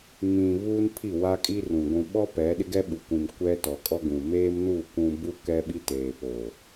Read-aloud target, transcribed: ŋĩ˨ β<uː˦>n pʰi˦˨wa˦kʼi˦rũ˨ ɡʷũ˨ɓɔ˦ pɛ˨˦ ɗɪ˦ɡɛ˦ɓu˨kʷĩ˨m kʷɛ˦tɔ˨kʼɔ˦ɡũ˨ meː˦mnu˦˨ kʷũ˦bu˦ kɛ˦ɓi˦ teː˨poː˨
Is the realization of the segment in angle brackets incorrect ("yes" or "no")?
no